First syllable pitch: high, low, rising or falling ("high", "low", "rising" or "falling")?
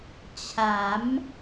rising